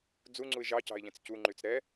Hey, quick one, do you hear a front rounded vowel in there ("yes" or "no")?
yes